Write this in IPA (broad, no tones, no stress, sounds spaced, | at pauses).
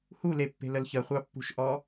h u l e pː e̤ l ə l ç ə χʷ ɑ pː ṳ ʃ ʔ ɔ